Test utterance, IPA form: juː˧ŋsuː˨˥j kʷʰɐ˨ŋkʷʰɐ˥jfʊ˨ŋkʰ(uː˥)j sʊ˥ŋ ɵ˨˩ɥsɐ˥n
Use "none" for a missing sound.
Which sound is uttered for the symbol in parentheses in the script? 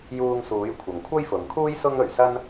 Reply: uː˥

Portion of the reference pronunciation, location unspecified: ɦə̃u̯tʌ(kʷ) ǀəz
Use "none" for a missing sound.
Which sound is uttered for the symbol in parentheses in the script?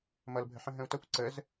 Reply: kʷ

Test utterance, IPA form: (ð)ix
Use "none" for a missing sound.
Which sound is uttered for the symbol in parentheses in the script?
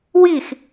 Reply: w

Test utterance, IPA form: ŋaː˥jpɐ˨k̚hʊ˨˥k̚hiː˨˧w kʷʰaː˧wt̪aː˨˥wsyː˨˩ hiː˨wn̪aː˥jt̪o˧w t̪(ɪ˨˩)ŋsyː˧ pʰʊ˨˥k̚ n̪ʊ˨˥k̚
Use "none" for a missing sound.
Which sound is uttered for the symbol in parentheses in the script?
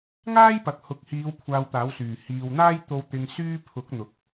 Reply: ɪ˨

